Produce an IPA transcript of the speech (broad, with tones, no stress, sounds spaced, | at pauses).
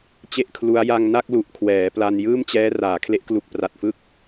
t͡ɕ e˥˩ ʔ kʰ l u˦˥ a̯ j a˧ ŋ n a˥˩ k̚ l u˨˩ ʔ kʰ w ɛː˩˦ p l a˧ n j ɯː˥˩ m t͡ɕ ɛː˦˥ r aː˩˦ kʰ l e˦˥ ʔ k l u˨˩ k̚ p r a˨˩ t̚ f ɯ˥˩ k̚